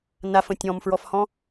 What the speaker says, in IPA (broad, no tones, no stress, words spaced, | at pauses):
nafə̃ tʲɔ̃mfɹɔfhɔ̃